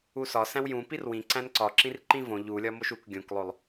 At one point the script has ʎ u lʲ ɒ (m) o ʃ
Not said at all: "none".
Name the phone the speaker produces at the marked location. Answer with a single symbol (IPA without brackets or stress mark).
m